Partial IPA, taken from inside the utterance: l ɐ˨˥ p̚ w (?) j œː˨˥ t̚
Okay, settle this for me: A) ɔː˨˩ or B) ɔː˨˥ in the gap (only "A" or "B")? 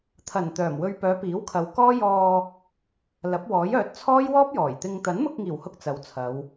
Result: B